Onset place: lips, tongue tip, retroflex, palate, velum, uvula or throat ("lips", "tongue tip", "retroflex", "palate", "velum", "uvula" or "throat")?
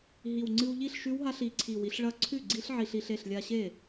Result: throat